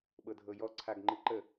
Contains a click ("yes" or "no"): yes